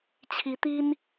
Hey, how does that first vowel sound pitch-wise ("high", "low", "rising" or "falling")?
rising